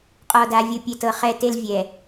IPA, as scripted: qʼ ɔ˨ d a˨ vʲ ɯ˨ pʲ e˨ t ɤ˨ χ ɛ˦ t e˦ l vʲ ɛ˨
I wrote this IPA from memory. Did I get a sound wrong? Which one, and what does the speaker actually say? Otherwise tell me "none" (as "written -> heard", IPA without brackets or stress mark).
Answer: none